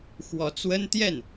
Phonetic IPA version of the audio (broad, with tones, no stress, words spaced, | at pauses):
xwɔ˧˥t͡swə˥n t̪jɛ˥˩n